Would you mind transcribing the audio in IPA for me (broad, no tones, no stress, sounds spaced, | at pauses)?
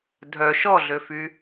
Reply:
dʱ œ ʃ ɔ ɮ ø f y